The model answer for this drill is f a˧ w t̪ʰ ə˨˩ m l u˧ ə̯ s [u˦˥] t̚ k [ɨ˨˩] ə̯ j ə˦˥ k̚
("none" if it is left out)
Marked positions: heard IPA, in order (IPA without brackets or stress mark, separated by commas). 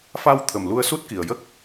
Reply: u˦˥, i˨˩